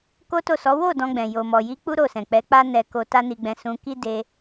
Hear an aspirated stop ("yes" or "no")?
no